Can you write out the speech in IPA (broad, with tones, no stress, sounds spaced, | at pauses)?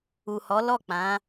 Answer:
u˨ h ɔ˨˦ l ɔ˦˨ k͡p ã˨˦